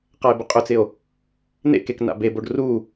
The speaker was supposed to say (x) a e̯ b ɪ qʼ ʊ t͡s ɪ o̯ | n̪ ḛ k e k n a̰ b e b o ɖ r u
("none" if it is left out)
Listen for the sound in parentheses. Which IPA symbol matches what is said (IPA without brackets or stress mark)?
q